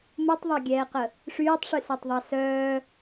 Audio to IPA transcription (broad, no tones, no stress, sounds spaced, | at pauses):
m u tˤ ðˤ a ɡʲ ɛː q ə | ʂ yː tˤ ʂ y s ɛ tˤ ðˤ ɑ s œː